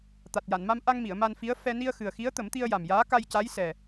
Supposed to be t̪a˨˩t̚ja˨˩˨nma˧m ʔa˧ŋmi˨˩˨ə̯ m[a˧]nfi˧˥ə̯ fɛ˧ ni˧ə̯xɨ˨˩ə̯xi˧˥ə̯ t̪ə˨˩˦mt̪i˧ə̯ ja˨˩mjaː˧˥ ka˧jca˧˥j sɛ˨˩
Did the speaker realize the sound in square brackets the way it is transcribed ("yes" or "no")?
yes